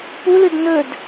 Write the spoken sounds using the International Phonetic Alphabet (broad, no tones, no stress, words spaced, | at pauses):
pulɨd nɵd